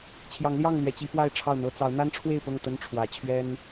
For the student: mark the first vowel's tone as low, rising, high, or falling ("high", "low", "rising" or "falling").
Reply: rising